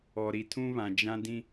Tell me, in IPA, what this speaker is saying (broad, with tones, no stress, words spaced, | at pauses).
ɔ˨ɾi˨tʰũ˦βã˨ d͡ʒã˦dĩ˦